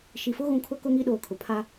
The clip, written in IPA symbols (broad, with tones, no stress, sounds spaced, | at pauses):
ʃ i˨ f ʊ˦ ɣ ũ˨ kʰ ʊ˦ k ʊ˦ ŋ i˦ ɗ oː˨ kʰ ʊ˨ pʰ a˦